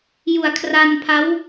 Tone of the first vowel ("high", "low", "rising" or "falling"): low